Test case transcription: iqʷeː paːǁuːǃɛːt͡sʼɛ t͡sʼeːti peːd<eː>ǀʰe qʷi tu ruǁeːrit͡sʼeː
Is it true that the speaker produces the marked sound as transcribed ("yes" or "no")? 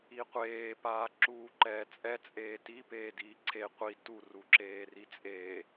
no